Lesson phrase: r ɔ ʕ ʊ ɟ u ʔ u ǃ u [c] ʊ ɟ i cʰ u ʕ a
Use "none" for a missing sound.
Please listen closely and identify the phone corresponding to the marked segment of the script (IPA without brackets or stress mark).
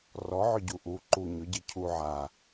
ɲ